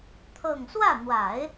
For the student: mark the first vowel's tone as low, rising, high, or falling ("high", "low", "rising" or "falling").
falling